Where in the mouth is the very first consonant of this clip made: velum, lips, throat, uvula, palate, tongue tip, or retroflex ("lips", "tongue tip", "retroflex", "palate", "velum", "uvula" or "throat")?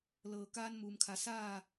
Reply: tongue tip